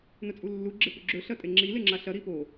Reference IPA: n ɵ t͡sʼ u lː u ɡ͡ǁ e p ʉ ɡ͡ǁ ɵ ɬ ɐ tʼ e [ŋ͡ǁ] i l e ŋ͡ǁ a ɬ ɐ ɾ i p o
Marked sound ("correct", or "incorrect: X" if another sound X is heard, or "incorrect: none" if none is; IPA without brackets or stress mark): correct